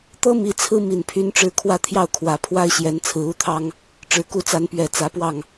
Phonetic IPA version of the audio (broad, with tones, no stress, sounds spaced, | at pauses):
t̪ ɤ˥ m i˧˥ t͡sʰ ɹ̩˥ m i˨˩ n pʰ y˧˥ n ʈ͡ʂ ɻ̩˧˥ kʰ w ä˥˧ t̪ʰ j ɑ˥˩ ʊ̯ kʰ w ä˨˩ pʰ w a˥ ɪ̯ ɕ j ɛ˧˥ n t͡sʰ ɹ̩˧˥ u˥˩ t̪ʰ ɑ˥ ŋ | ʈ͡ʂ ɻ̩˨˩ k u˥˩ t͡s a˧˥ n p ɥ ɛ˨˩ t͡s ä˧˥ p w ɑ˥˩ ŋ